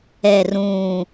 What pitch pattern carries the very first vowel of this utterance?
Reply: falling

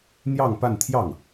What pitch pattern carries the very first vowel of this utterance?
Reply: falling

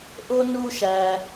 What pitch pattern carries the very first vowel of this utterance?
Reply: high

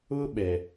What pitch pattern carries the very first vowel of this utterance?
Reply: high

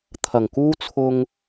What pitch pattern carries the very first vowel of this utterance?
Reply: low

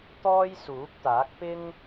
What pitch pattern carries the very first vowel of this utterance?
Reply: high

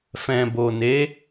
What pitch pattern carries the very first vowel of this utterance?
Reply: low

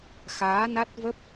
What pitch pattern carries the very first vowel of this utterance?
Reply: rising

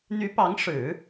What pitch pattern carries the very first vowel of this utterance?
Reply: rising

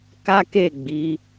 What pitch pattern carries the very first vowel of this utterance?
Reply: high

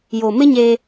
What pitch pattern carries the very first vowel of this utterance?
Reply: low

